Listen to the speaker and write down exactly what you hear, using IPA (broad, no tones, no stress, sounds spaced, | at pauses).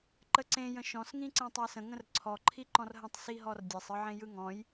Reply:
ǃ ə ǀ ẽ j ə̃ ʃ ɔ̃ s ŋ ĩ ǀ ɛ̃ tˤ a s ə̃ ŋ ə̃ r ǀʰ ɔ ǃʰ i ǃ ɔ̃ r ɦ ə̃ tˤ s i ɦ ɔ r dʲ ɛ sˤ ɯ ʕ ẽ j ɯ ŋ ɔ̃ j